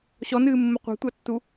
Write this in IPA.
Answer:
ɕ ɔ n ɨː mː ə qʷ ɑ̤ tʷ ɑ tː u

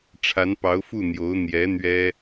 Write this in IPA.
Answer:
ʈ͡ʂʰ a˧˥ n p ɑ˧˥ ʊ̯ f u˥˩ n̪ j o˧˥ ʊ̯ n̪ j ɛ˧˥ n̪ ɥ ɛ˥

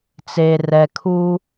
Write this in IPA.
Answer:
t͡s eː˨ r ɛ˨ kʰ uː˦

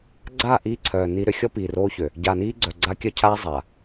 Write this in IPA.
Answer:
ɡ͡ǀ a˦˨ ʔ iː˦ ǀʰ œː˨ n i˦ ɾ ø˦ xʲ ɔ˦ p iː˨ r oː˦ ç ø˨ | ɟ a˨ n iː˦ ɡ͡ǀ œ˨ ɡ͡ǀ a˦ kʲ œ˦ cʰ aː˦ zˤ a˨

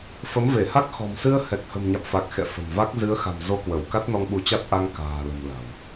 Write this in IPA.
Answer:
f ə˨˦ m v e˧˩ h a˦˥ k̚ x ɔ̤˨˩ m s ɨ˧ ə̯ h ɛ˨˩ k̚ h ə̤˨˩ m ɲ a̰˧˨ m f a˨˩ k̚ x ɛ̰˧˨ f ə̤˨˩ m v a˦˥ k̚ z ɨ˨˦ ə̯ x a̤˨˩ m z o˧ k w ə˧˩ w k a˦˥ t̚ n ɔ˧ ŋ ɓ u˨˦ t͡ɕ a˦˥ t̚ ʔ a˧ ŋ k a̤ː˨˩ l ə̤˨˩ m l a̤˨˩ w

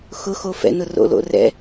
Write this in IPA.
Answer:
x ʊ x o f ɛ̰ n ʊ r o̰ l o̰ r ɛ̰

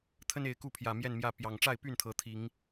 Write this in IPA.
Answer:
t̪ʰ ə˦ n e˨˩ ɪ̯ k u˥˨ pʰ j ä˨˩ m j ɛ˥˨ n m j ä˥˨ p j ɑ˨˩ ŋ ʈ͡ʂ a˥˨ ɪ̯ p y˥˨ n t̪ʰ ɤ˨˦ t̪ʰ i˨˦ ŋ

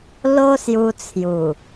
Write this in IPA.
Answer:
l o˦ s j u˧ t͡sʰ j u˨˩

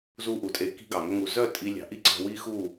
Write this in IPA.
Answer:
z u˦ ʔ u˨ tʼ e˧ k i̤˦ ɡ ɑ˨ ŋ ɵ˦ ŋ u˧ z œ˦˨ tʼ i˧ lʲ ɑ̤˨ ʔ i˦ ǀ ɑ̤˧ w i˦ x u˦˨

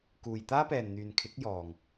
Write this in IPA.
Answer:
k uː˨ j t̪ aː˥ p ɛː˨ n n̪ yː˨ n kʰ ɪ˨˥ k̚ j ɔː˨ ŋ

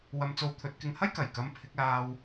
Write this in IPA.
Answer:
w ɐ˧ m t͡s o˧ w t̪ʰ ɵ˨˥ t̚ k ɪ˧ ŋ h ɐ˥ j k ɐ˨˩ j k ɐ˨˧ m pʰ ɪ˨˥ k̚ l aː˧ w

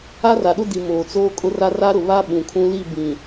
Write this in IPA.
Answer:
a˦ r a˨ ɗ ʊ˦ d i˨ m oː˨ t͡s oː˦ kʼ ʊ˦ r a˦ r a˦ ɾ ʊ˨ β a˦ ɓ ũ˨ kʰ ũ˦ l i˦˨ b ĩ˨

